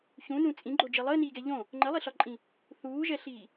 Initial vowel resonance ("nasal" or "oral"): nasal